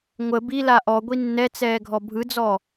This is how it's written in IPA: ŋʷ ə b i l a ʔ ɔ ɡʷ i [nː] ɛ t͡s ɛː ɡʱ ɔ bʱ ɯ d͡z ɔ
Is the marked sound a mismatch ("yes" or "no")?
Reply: no